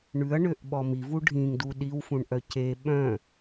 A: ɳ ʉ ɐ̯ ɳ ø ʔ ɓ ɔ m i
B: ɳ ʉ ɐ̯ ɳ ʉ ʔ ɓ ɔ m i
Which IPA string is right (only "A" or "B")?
A